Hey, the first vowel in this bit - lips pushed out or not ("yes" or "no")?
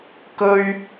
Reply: yes